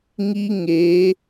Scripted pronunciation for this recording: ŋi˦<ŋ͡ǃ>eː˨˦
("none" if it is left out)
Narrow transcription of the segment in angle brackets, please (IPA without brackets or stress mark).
ŋ